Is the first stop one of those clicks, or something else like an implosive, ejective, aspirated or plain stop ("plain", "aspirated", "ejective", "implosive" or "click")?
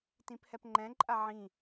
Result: plain